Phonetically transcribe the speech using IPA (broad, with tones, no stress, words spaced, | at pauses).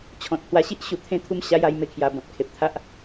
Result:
t͡ɕʰɔ̃˨t̚hwa˧ɕi˦ʔ ɕu˨˩t̪ʰẽ˧ t̪ʰu˥˧mɕa˦ja˧j me˧kʰja˨˩bɔ̃˨t̚ kʰe˨p̚t̪ʰa˦ʔ